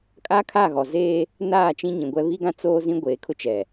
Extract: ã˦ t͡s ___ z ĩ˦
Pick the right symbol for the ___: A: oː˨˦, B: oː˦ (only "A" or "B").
B